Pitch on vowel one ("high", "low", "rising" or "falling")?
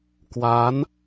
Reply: rising